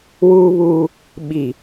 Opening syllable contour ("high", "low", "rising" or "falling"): high